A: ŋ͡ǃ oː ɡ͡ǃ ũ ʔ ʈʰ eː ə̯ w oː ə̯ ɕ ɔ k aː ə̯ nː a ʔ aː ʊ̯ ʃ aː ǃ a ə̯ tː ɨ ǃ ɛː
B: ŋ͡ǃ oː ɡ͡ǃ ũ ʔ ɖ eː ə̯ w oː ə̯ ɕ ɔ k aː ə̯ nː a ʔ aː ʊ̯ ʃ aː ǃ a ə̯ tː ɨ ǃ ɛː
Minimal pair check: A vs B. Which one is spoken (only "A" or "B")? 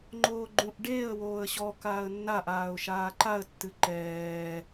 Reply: B